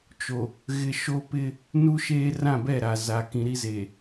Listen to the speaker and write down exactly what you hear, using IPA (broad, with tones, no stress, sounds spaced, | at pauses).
t͡ʃ o˨ | ɣ ɪ˦ ʃ o˦ p ɪ˦ | n u˦ ʃ eː˦ r ã˦˨ b ɛ˦˨ ɾ a˨ z a˨ k ĩ˨ ɾ i˦ z e˨